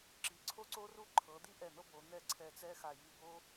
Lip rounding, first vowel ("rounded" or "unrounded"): unrounded